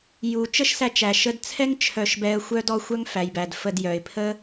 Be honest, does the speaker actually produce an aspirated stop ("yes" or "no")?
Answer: yes